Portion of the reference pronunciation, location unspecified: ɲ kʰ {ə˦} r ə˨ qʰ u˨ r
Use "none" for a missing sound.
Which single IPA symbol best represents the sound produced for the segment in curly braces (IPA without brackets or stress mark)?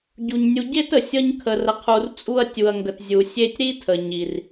ə˨